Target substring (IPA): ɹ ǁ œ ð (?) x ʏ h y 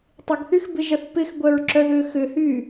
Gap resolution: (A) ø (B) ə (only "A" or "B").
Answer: A